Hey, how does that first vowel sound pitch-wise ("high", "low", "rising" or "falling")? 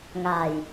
low